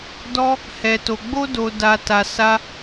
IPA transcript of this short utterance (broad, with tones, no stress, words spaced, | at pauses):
dɔ˦ | hɛ˧to˧ ɡ͡bo˦do˧ da˧ta˧ sa˦